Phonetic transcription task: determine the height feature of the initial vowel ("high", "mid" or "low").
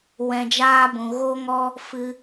mid